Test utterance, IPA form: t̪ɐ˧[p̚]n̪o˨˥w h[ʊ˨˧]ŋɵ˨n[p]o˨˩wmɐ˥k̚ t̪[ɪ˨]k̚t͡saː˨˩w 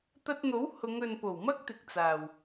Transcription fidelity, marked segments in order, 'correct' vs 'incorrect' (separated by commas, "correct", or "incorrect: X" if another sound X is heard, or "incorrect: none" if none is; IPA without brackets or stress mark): incorrect: t̚, correct, correct, correct